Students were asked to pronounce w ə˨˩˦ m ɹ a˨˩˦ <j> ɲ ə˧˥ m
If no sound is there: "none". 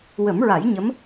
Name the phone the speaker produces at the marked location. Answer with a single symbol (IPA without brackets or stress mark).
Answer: j